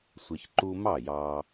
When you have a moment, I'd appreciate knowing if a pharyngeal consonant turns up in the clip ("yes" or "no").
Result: no